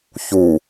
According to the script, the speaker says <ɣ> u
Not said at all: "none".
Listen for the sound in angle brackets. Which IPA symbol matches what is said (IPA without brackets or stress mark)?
ç